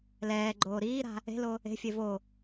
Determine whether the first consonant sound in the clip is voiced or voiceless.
voiced